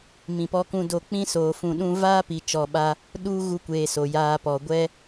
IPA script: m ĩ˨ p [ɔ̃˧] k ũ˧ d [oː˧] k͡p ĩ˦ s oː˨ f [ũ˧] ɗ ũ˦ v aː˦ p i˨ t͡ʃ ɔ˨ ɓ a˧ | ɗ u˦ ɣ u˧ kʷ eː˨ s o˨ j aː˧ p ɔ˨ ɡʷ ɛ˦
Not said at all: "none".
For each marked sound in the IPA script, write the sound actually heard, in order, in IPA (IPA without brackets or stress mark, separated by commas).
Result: ɔ˧, o˧, ũ˧